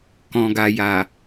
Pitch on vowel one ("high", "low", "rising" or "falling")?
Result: low